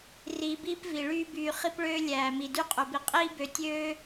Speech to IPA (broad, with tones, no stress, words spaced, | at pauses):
riː˧biː˦pvi˨ ɭyː˦byː˧ χi˦pɭøː˦ lʲæː˨mi˨dy˦ qʼɵ˨bi˨ qʼiː˦bø˨˦ tʲøː˦